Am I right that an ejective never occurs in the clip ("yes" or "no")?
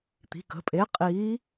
no